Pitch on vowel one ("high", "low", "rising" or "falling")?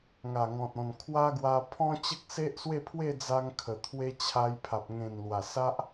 low